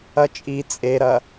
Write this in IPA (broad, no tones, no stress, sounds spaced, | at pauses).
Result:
ɐ t͡ʃʼ i t͡sʼ e ɾ ɐ